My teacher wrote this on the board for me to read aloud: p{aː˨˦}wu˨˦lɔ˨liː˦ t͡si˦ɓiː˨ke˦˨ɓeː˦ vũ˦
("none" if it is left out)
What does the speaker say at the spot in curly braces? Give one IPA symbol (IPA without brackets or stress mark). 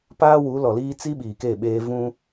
aː˦